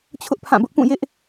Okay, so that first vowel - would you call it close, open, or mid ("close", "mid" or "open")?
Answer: close